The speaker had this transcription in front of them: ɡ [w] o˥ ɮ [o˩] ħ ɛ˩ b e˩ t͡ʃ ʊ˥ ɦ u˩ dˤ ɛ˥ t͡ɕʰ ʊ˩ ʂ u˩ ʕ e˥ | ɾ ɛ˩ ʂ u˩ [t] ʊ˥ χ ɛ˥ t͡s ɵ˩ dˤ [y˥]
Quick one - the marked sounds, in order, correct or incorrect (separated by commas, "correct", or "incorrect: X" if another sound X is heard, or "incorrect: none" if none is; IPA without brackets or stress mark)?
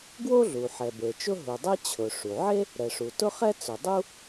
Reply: correct, incorrect: u˩, correct, incorrect: u˥